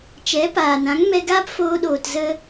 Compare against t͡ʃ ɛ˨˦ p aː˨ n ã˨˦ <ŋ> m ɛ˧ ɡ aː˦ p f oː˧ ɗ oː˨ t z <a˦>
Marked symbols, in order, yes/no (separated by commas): yes, no